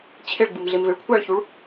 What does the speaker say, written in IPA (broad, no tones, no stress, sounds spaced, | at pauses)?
t͡ɕʰ e ɭ ɡ͡b ɯ m ɮ e m v e ɭ kʷʰ a ɭ ç u ɭ